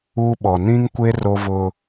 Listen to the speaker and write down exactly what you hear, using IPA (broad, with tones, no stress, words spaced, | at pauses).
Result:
u˦ɓɔ˨ nĩ˦ŋkʷe˦ ro˦vʊ˦